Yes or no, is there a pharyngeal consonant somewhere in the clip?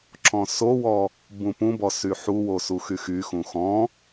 yes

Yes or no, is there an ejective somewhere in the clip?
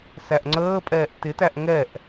yes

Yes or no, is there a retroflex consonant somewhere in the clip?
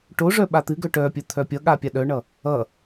yes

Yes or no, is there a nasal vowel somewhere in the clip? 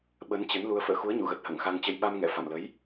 no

